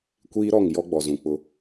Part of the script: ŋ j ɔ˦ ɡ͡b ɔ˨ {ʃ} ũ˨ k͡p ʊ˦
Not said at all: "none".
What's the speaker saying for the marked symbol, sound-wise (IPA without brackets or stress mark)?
z